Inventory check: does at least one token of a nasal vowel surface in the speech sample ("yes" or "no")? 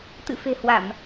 no